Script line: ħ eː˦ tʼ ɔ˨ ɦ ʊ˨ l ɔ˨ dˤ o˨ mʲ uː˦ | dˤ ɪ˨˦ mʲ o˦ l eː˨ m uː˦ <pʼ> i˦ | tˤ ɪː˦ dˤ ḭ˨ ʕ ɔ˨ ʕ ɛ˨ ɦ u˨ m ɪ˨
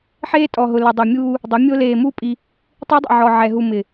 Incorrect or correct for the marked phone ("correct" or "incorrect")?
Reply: correct